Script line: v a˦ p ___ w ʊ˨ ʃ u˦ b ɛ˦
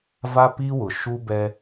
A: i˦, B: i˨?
A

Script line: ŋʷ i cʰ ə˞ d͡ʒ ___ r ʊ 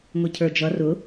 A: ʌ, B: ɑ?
A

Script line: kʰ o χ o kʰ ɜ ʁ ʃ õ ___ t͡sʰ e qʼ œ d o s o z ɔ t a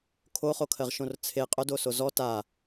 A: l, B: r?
B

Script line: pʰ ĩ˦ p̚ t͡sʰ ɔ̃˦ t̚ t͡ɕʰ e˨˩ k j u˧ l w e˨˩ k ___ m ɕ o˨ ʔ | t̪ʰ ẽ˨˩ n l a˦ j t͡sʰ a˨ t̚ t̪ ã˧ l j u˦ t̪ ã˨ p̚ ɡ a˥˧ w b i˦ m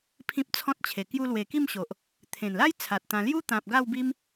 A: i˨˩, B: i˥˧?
B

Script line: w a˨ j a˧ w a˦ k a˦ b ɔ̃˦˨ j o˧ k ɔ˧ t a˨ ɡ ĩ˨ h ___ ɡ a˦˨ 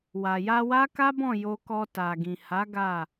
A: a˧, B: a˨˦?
B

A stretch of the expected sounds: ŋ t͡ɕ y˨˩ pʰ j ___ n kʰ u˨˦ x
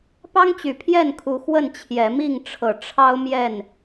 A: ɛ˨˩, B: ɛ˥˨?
B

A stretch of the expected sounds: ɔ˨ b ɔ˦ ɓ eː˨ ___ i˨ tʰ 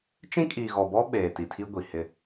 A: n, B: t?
B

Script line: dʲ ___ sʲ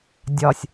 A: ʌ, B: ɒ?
B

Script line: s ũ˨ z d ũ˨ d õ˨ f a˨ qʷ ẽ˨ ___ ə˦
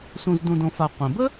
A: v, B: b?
B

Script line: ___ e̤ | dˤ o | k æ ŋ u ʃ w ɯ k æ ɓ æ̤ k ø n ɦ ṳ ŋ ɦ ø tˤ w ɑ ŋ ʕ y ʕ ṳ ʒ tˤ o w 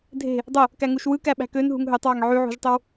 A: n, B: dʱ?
B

